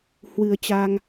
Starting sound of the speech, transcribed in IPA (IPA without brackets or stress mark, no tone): h